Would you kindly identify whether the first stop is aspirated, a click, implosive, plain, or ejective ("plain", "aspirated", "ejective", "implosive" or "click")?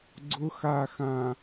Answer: click